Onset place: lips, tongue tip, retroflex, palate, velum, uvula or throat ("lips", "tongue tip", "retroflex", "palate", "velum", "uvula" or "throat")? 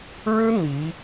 retroflex